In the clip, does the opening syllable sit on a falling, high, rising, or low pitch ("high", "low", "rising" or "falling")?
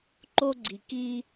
high